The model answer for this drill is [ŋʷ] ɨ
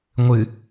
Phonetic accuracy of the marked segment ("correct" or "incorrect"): correct